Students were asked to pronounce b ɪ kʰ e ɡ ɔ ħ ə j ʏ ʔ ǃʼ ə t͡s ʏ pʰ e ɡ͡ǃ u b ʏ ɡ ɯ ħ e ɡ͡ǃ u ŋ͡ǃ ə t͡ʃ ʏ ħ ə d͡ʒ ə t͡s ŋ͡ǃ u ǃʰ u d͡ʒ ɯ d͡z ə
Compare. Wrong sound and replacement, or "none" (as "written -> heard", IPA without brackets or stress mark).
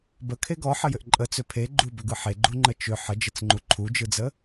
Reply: ɪ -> ə